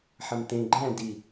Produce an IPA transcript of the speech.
ħ ɐ m t̪ ẽ ɡ͡ǃ æ̃ d i

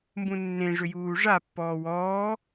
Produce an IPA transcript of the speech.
m b ũ nː ẽ ʐ ʏ j uː ʐ a pː ɔː w ɔː

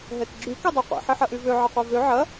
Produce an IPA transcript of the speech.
ɦ ɛ t ɡ͡ǁ y k ɛ dˤ ɛ qʷ ḭ ħ i ħ ɐ ʔ y v ø ʕ ɐ qʷ ɛ v ø ʕ ɐ

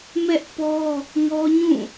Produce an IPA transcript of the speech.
m ɛ˦ ʔ p ɔ˦ | ŋ ɔ˦ ɲ ũ˦˨

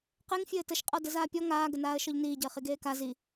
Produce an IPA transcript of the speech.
q e ŋ fʲ ɘː t ə ʃ qʼ ɔ d ə z aː pʲ ɔ ŋ aː ɡ ə n aː ə̯ ʃ ɔ ʎ n iː ɟ əː χ i ɡ eː k a z i

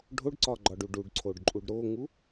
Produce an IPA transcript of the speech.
ɖʱ o ɖ ǀ ɒ ɡ͡ǃ ɒ ɖ u ɖ u ɖ ǀʰ o ɖ ǃʼ u ɖ ɾ o ŋ u

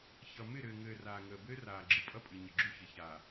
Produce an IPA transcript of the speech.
ç ʌ˨ m ɪ˦˨ ɾ ɘː˨ ŋ ɘː˨ r aː˨ ŋ əː˨ b ɘː˦ r aː˨ ɡ͡ǁ ɨ˨ pʼ ʌ˦ pʼ ɨ˨ ɲ ɪ˨ ɡ͡ǁ u˦ ç ɪ˨ ç aː˨

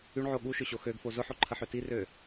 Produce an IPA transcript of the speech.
y ɳ ʕ o ɠ u ʃ ʏ ɕ o x ø ɡ f o z ʊ ħ o ǃʰ ə ħ ø t i r ø

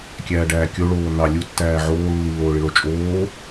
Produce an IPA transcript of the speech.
kʲ æː ɖ æː kʲ o ɭ oː n ɑ lʲ u tː æː ʕ oː lː i lː oː ɭ i ɭ o t͡ʃʼ oː

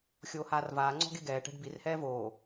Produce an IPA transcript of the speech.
xʲ oː h aː r v aː ŋ͡ǀ ɔ̤ ɡ e ɡ ɛː ʈ ɛ̤ ɖ b i r h ɛː v oː

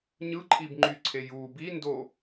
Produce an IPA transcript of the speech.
ɲ ɯ ǃʼ i b ŋ͡ǃ y ǀʰ e j u b i n d o

